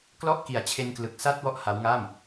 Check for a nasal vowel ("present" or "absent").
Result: absent